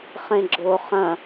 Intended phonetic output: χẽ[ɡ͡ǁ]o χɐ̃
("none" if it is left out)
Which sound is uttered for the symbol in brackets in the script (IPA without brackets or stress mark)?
ɡ͡ǁ